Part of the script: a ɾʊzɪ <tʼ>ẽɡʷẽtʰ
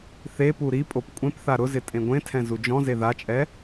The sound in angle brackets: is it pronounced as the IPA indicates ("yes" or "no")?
yes